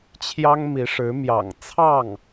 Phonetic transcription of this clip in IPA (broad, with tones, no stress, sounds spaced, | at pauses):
t͡ɕʰ j ɑ˥ ŋ m i˧˥ ʂ ɻ̩˧˥ m j ɑ̰˨˩ ŋ t͡sʰ ɑ˥˩ ŋ